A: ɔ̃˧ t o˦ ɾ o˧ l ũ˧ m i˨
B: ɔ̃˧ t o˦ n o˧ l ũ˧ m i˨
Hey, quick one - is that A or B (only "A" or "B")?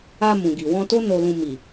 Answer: B